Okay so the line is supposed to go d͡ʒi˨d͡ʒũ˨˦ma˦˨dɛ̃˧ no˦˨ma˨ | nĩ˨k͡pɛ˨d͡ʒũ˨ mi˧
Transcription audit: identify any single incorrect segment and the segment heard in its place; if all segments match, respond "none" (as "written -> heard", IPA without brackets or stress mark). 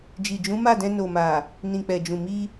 o˦˨ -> o˨